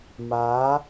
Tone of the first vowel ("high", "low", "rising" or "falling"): rising